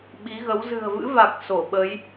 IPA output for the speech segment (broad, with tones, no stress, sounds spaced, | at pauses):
ɓ i˨˦ ɣ ə˨˦ w z ɨ̤˨˩ ə̯ v ɨ̰˧˥ v a˨˩ k̚ s o˧˩ ɓ ə˨˦ j